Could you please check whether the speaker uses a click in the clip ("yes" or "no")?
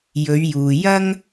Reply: no